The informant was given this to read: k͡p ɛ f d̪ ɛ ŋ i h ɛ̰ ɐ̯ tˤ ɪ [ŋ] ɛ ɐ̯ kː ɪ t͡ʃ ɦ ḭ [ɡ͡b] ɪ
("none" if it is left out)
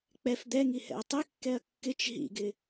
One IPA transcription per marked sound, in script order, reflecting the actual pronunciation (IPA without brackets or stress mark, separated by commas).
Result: kː, ɡ